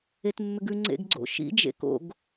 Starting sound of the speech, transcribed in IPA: e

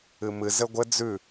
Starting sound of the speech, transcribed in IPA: ɨ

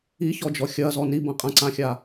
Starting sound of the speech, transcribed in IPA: i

